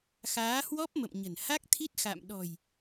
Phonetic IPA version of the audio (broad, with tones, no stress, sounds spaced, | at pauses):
x aː˨˦ h w ɔ˦˥ p̚ m ə̰˧˨ m ɲ ə̤˨˩ n h a˦˥ k̚ t̪ʰ i˦˥ t̚ x a̰˧˨ m ɗ ɔ̤˨˩ j